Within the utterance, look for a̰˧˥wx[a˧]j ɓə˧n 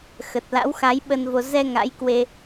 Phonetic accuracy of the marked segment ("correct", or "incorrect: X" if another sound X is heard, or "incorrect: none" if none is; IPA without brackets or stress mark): incorrect: a˨˦